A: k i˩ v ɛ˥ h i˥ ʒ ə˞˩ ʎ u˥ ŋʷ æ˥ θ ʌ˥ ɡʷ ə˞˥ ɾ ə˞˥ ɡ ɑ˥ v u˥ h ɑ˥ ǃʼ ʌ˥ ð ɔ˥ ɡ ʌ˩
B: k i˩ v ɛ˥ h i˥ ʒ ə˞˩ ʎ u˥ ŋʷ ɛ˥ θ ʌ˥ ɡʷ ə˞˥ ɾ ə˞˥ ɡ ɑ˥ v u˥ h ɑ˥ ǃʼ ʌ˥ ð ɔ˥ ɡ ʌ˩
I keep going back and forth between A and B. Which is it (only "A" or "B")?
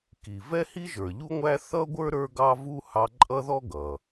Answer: A